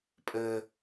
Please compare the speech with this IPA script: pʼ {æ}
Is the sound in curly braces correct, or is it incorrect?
incorrect